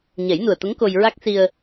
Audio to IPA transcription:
ɲ ɛ˨˩˦ j n u˨˩ ə̯ t̪ ə˧˥ ŋ k o˧ j ɹ a˦˥ k̚ s i˧ ə̯

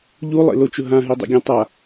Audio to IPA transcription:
ʎ u lˠ ḛ l o t͡ʃ ʊ ɦ ã ɦ e dˤ ɛ̰ ɡʲ ã tˤ a

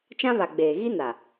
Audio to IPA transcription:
t͡ʃ ã˦ β a˨ ɡ͡b eː˨ ɣ i˦ n a˨

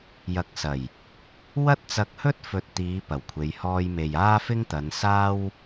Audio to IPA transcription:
j ɐ˨ k̚ s ɐ˨˩ j | w ɐ˥ t̚ t͡s ɐ˧ k̚ h ɵ˥ t̚ f ɵ˨ t̚ t̪ iː˨˧ p ɐ˨˩ w kʷʰ e˨˧ j h ɔː˧ j m e˨ j aː˥ f ɪ˧ ŋ t̪ ɐ˨˧ n s aː˥ w

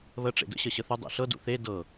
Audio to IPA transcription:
β ə ʈ͡ʂ ḛ d ə̰ ɕ ə ɕ ə θ ʊ dˤ ḛ ɬ ɤ d ṵ θ e d ɤ

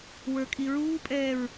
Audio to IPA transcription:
w ə˞ kʼ i ɹ uː pʼ ɛː ɹ

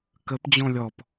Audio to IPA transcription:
k ə p d͡ʑ ɔ̃ lʲ ɔ p

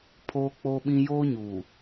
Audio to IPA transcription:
pʰ oː˦ k͡p o˦ ɓ ĩ˦ j oː˦ ɲ uː˨

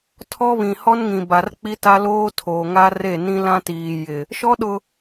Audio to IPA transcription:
tʰ ɔ˦ β ĩ˨ h ɔ˦ n ŋ ĩ˨ b a˨ r k͡p i˦ t a˦ l oː˦ tʰ oː˨ ŋ a˦ r e˦˨ n ĩ˦ l ã˦ t iː˨ j ɪ˨ | ʃ ɔ˦ ɗ ʊ˨

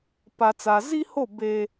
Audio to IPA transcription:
p a˨ t͡s a˨ z i˦ h o˦˨ b eː˦

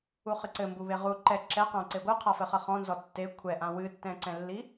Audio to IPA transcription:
u χ ɨ ǀ ɘ m b u β e ʁ u ǃ ɛ ǁ ɛ q ã ǀ e ɡʷ ɨ qʰ a f ɘ χ ɐ χ ɔ̃ n z ɔ tː e kʷʰ ɛ ʔ ã w ɨ tː ɛ̃ ǀ ɛ̃ lː i

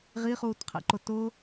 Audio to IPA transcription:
ʁ i χ uː t qʰ ɛ̰ ǃ ʊ t ʊ

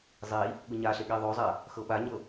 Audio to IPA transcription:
zˤ i | ɠ ɯ ɲ a ɬ e ɠ i ðˤ o zˤ a | x ɤ ɓ a ɲ ɤ

